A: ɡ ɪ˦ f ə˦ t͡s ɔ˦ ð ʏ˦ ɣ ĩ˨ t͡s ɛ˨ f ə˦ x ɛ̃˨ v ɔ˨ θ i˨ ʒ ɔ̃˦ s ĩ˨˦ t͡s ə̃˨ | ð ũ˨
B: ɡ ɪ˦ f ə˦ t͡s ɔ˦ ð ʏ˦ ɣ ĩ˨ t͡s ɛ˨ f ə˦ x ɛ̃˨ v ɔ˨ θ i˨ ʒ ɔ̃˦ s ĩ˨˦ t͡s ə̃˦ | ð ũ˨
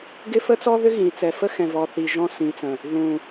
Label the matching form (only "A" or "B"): A